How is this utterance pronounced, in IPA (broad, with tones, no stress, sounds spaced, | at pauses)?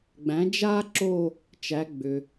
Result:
ɡ͡b æ̃˩˥ d͡ʒ a˥ ǁ o˥˧ | t͡ʃ æ˩˧ ɡ͡b ʏ˩